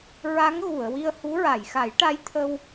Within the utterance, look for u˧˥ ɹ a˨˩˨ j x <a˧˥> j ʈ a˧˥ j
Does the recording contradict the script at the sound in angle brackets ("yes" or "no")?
yes